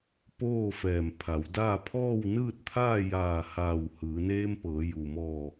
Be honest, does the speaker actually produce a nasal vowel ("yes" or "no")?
no